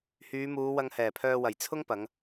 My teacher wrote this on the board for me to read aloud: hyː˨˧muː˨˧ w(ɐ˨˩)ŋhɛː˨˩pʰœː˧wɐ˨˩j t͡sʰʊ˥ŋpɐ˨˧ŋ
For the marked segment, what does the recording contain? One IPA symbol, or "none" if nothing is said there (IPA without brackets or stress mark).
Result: ɐ˧